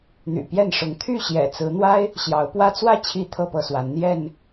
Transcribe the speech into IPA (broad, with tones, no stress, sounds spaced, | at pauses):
n̪ y̰˨˩ p j ɛ˥˨ n ʂ ʊ˨˦ ŋ t̪ʰ y˥˨ ɕ j ɛ̰˨˩ t͡s ɹ̩˨˦ n̪ w a˦ ɪ̯ | ɕ j ɑ˨˦ ʊ̯ p w ä˦ t͡s w ä˥˨ t͡ɕʰ i˥˨ t̪ʰ ɤ˥˨ p ɤ˥˨ s w a˨˦ n n̪ j ɛ˥˨ n